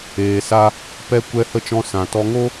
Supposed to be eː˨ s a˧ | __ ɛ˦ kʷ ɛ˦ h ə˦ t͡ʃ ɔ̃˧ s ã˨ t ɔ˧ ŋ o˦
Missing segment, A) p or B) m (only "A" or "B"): A